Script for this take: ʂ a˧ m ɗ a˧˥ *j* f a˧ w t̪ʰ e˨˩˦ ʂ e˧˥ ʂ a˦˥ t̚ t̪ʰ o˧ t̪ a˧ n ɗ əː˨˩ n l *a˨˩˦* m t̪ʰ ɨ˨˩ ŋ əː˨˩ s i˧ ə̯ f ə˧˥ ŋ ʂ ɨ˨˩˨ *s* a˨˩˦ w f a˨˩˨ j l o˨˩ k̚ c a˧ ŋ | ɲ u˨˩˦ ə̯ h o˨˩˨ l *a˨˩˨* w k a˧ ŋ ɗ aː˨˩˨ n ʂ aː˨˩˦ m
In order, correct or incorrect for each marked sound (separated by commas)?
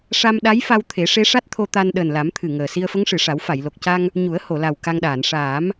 correct, correct, incorrect, incorrect